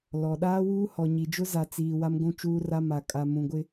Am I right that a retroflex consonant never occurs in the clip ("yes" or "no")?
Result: yes